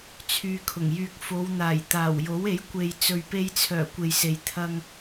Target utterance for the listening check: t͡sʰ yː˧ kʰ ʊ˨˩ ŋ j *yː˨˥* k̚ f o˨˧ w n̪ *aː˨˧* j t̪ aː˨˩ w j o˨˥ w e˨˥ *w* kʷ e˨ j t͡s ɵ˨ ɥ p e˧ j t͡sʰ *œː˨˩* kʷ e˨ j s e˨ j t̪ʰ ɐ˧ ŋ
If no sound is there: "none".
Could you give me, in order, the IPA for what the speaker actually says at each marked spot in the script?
yː˧, aː˨˩, j, œː˨˩

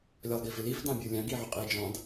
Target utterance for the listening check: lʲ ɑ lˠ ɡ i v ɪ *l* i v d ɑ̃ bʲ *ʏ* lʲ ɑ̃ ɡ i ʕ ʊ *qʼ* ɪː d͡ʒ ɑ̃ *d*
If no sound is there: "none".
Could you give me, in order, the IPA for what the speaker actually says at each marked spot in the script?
l, u, qʼ, d

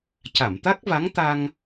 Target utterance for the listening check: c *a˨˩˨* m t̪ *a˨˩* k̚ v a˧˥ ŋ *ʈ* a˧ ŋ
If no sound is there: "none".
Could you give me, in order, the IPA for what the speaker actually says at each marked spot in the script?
a˨˩˨, a˦˥, t̪

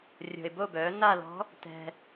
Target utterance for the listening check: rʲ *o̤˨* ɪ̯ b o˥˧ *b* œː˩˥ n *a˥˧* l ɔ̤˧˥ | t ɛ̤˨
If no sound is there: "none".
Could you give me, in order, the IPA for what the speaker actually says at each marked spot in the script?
o̤˨, b, a˥˧

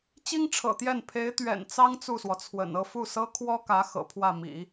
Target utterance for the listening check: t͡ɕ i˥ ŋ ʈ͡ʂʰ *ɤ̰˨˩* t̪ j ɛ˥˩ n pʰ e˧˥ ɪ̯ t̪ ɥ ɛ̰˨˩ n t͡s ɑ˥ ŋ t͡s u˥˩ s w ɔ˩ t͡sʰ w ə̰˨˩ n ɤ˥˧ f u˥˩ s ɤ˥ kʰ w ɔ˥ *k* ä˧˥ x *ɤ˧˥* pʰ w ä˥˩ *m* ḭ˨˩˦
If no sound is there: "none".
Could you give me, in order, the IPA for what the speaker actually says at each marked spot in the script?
ɤ̰˨˩, k, ɤ̰˨˩, m

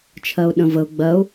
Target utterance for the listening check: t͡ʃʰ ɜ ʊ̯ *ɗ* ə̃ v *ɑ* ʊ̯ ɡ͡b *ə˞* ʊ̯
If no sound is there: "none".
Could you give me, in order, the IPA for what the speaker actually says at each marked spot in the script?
ɗ, ə, ɜ

